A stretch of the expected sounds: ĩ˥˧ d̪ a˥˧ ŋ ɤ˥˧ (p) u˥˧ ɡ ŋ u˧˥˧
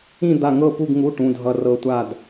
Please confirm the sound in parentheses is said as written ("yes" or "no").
yes